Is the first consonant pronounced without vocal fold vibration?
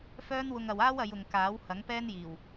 yes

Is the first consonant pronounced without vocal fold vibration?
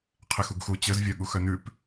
yes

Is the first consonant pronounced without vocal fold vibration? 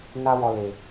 no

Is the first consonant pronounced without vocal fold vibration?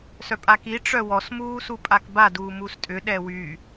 yes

